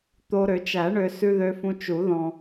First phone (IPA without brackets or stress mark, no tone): t̪